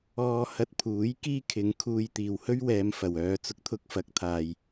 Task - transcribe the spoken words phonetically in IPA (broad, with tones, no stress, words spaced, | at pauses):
ɔː˧hɐ˧t̚pʰuː˨˥j kiː˥kʰɪ˨˧ŋkʰuː˧j t̪iː˨whɵ˥ɥwɛː˨˧m fɐ˨wœː˧ t͡sʊ˧k̚t̪ʰʊ˧k̚fɐ˨˥k̚ t̪ʰaː˧j